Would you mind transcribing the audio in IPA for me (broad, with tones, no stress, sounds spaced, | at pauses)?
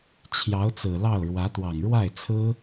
t͡ɕʰ j ɑ˧˥ ʊ̯ t͡s ɹ̩˨˩ l ɑ˥˩ ʊ̯ ɻ w ä˧˥ t̪ w ɑ˨˩ ŋ ɻ w a˥˩ ɪ̯ t͡sʰ ɹ̩˥